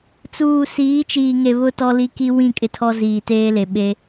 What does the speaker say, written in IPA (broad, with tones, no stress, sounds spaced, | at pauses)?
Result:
t͡s uː˨ s iː˨˦ t͡ʃ iː˨ ŋ e˨ β ʊ˨ t ɔ˨ l i˦ k i˦ w ĩ˦˨ kʼ ɪ˦ tʰ ɔ˦ z iː˨ t eː˦ l e˨ ɓ e˦